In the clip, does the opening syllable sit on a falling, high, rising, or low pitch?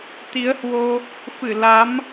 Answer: rising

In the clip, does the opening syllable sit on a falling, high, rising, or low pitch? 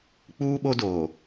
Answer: high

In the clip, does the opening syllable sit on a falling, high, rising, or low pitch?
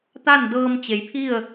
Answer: falling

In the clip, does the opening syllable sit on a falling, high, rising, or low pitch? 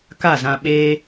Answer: falling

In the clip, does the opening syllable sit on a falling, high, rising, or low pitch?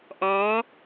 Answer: rising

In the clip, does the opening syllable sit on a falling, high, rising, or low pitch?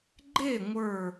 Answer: falling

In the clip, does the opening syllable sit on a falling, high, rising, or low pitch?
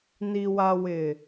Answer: low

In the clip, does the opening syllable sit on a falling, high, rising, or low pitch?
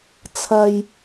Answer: low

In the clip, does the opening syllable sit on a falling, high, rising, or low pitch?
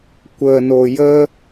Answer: low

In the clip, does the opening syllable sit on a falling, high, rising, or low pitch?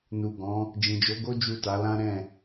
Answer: low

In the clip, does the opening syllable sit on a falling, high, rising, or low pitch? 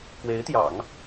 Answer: rising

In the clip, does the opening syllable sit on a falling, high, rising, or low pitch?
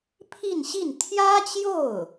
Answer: falling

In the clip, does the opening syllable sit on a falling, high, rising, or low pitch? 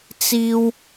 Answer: high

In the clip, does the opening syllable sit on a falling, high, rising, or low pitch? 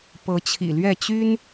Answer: rising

